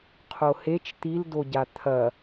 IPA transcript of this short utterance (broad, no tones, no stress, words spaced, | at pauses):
qʰohet͡ʃ t̪ildoɟa t̪ʰɐ